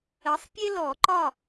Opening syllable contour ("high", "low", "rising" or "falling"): rising